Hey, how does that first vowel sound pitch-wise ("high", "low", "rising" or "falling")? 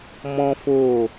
high